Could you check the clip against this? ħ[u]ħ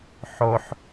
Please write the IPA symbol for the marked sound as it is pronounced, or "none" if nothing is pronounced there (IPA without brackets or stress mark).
o